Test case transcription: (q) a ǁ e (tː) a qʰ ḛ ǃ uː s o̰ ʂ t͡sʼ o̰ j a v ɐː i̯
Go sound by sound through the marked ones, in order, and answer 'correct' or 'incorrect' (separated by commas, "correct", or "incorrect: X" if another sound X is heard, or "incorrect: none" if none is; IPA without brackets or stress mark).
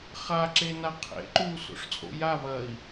incorrect: χ, incorrect: n